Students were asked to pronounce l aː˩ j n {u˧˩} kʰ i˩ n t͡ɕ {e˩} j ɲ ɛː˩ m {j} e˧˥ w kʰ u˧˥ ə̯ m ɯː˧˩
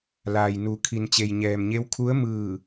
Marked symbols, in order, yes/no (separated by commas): no, yes, no